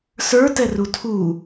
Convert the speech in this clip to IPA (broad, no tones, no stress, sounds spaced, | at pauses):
s ə˞ t ɛ r u tʰ u